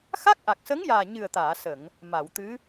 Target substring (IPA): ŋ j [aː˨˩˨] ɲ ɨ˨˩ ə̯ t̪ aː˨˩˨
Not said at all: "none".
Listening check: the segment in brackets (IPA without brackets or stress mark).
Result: aː˨˩